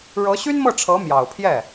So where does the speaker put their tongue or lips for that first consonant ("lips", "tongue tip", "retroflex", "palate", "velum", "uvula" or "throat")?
retroflex